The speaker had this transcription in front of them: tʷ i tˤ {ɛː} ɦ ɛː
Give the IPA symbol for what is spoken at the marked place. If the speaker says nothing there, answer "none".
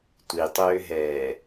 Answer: øː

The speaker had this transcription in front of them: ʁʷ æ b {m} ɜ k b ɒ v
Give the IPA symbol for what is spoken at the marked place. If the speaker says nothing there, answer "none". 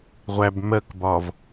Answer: m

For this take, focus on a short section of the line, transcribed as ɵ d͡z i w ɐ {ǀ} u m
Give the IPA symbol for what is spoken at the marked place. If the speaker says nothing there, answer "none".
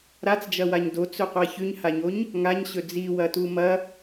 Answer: t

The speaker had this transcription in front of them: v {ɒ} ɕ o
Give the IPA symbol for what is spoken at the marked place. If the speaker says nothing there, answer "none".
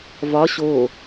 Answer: ɒ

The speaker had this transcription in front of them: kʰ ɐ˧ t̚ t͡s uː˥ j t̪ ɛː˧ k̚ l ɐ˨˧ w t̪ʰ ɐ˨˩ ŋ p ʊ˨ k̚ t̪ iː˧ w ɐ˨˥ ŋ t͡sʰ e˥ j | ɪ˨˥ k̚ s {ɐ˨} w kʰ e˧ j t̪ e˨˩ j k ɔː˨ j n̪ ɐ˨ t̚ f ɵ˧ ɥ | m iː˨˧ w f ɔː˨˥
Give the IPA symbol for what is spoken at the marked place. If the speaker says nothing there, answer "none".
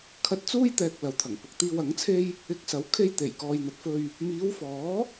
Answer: ɐ˨˥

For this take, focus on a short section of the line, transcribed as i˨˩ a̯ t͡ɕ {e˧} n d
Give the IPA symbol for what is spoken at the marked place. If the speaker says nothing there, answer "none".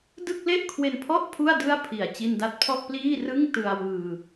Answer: i˧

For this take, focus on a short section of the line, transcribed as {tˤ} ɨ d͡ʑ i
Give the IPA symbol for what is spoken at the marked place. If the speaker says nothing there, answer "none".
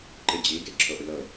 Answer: ǃ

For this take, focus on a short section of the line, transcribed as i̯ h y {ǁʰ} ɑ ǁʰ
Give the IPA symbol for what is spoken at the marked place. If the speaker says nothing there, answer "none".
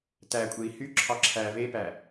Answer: ǁʰ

